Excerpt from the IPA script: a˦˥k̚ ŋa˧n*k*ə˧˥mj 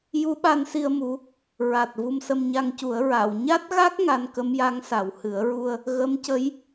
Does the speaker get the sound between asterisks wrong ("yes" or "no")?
no